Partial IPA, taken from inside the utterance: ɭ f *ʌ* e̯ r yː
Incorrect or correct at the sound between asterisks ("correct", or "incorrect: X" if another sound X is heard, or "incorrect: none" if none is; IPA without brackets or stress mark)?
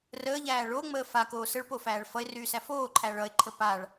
correct